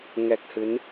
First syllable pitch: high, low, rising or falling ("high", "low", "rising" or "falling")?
low